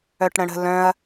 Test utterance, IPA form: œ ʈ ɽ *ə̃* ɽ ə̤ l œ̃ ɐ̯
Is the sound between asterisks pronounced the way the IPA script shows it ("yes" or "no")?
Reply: yes